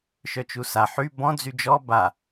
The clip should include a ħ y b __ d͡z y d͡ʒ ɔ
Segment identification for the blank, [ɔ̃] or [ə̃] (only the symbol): ɔ̃